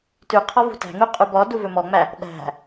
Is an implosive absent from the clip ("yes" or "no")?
no